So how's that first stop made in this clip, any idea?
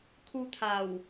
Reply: aspirated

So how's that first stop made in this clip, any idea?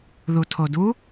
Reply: aspirated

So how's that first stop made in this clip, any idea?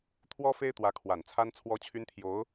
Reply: aspirated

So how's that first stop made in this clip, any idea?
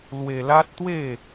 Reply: plain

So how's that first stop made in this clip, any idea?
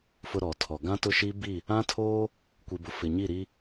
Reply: aspirated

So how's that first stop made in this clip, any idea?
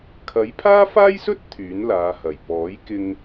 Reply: aspirated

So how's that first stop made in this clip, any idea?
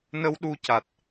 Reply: implosive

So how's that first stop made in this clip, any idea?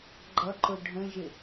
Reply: click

